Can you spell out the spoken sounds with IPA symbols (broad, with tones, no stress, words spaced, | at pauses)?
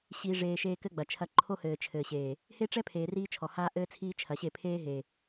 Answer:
ɕiː˨ʐeː˨ ʃeː˦kɘ˦ɡ͡bɐ˨t͡ʃʰɐ˦ ǃʰo˦hɘː˨t͡ʃʰɘː˨ɕeː˨ | he˦ʈ͡ʂɛ˦ pʰeː˨ riː˦t͡ʃʰɔ˨ haː˦ ʔɘː˦t͡sʰiː˦t͡ʃʰɐ˨ɕe˦˨ pʰeː˦ɦe˨